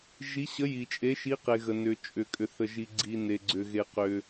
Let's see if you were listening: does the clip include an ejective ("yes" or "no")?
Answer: yes